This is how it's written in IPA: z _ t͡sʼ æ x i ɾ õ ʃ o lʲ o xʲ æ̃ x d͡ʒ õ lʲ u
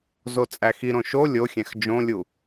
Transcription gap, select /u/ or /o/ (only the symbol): o